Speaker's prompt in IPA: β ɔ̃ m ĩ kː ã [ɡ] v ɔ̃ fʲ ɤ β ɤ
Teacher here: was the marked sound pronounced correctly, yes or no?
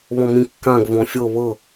yes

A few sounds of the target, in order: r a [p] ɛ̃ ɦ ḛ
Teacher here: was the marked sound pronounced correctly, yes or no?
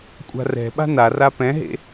yes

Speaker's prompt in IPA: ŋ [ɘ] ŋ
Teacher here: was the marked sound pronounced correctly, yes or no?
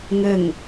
yes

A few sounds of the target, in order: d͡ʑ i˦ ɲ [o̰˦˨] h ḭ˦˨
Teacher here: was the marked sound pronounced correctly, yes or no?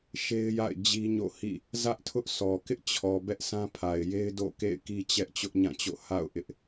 yes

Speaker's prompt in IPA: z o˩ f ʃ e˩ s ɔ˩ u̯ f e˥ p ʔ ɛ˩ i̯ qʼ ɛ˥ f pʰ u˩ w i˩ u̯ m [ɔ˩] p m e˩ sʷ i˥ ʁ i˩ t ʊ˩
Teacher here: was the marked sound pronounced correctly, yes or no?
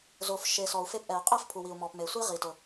yes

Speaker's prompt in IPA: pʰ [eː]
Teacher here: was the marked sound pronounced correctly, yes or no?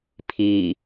no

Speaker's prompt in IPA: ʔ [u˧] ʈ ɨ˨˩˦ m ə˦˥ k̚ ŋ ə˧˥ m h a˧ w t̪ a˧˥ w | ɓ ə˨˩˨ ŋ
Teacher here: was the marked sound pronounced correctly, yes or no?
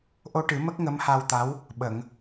no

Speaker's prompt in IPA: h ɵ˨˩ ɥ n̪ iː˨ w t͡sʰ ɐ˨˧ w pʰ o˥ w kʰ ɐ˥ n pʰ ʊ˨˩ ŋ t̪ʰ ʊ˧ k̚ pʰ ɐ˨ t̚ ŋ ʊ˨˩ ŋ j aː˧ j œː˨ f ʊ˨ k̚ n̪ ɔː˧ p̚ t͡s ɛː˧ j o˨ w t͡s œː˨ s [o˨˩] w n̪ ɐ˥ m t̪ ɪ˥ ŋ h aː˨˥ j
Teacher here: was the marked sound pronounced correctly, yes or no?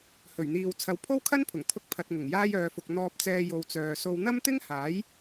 no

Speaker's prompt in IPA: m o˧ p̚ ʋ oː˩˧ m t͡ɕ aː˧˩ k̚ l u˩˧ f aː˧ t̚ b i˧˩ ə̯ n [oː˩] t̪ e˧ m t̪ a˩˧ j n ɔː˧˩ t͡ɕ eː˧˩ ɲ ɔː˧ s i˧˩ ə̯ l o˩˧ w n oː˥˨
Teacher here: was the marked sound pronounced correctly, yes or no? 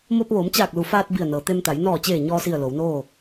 no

